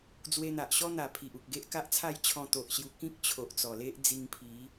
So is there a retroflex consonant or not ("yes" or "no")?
no